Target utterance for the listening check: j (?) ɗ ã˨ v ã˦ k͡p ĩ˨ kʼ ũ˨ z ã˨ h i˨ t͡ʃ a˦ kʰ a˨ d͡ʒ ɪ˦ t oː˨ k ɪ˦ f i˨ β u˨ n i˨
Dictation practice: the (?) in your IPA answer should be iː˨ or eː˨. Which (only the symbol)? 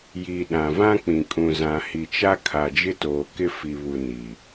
iː˨